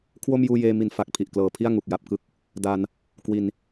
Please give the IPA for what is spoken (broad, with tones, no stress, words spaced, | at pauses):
kʰwo˥˩m juː˧jeː˧ mi˧n fa˨˩k̚pʰi˨˩ʔklɤː˨˩pʰi˥˩a̯ ŋu˨˩k̚ja˥˩p̚kɯ˥˩k̚ | da˧n | kwi˧n